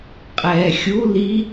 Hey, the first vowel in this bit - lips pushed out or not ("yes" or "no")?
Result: no